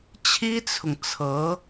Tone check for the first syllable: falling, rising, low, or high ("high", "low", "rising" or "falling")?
high